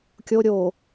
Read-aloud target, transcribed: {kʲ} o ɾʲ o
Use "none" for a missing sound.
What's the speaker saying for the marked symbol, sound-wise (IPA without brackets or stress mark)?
kʲ